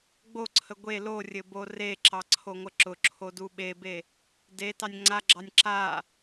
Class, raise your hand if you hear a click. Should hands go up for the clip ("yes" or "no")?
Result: yes